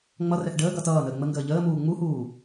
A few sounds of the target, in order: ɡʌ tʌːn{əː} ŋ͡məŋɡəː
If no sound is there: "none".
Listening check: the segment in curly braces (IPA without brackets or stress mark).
əː